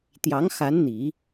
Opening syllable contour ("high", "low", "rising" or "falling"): rising